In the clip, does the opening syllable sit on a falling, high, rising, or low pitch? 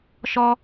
high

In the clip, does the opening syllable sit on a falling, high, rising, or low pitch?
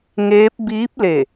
rising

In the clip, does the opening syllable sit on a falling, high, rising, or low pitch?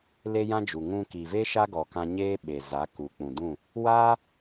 high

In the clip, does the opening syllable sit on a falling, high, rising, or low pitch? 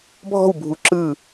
falling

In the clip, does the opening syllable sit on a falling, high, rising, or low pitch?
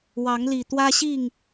rising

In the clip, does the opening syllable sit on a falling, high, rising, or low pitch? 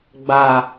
low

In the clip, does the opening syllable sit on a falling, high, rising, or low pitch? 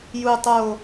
low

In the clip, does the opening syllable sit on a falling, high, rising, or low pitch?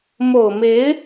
low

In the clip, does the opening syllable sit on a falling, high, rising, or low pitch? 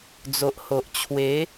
low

